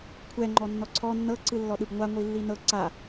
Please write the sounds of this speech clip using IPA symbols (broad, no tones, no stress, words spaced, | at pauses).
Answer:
kʷʰɛ ŋ͡ǃɔnːɔǀʰɔ nːɤ ǀɯlːɔɗɯbŋʷa ŋʷilːinɤ ǀa